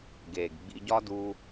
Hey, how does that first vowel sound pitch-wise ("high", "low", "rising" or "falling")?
low